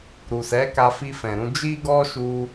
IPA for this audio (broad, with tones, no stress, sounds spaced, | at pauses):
ɾ u˨ s ɛ˨˦ k a˧ f i˧ f ɛ̃˨ ɾ ũ˧ d͡ʒ i˦ ɡ ɔ˦ ʃ u˧